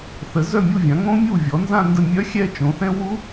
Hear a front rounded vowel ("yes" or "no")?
yes